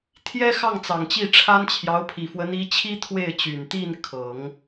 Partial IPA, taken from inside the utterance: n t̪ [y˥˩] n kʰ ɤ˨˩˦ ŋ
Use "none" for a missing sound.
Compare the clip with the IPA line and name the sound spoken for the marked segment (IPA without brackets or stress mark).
i˥˩